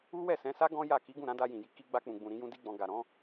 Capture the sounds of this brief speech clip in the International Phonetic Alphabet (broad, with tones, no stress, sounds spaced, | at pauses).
u˦ w ɛ˦˨ s ɛ̃˨˦ s a˦ ɡ ɔ̃˦ j a˦˨ k i˨˦ ɡ ũ˦˨ ɾ ã˨˦ d a˧ j ĩ˨ j i˧ k i˧ ɡ͡b a˧ k͡p ũ˨ ɡ͡b ũ˨ ɾ ĩ˨˦ j ũ˦ d i˦ ɡ͡b ɔ̃˧ ɡ a˨ ɾ ɔ̃˨˦